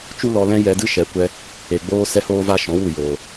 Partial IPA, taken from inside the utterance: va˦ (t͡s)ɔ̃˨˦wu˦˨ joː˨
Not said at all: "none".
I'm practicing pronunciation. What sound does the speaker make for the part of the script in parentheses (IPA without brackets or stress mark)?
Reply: ʃ